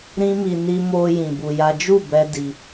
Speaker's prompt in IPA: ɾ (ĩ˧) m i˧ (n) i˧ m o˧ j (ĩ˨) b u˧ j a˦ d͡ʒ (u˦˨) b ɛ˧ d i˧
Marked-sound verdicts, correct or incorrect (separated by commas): incorrect, correct, correct, correct